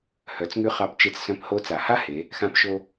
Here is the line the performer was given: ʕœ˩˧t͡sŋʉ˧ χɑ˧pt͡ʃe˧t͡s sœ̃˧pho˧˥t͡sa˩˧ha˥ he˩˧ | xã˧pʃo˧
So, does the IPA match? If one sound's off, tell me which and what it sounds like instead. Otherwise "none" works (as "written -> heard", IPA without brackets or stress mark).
ʕ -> h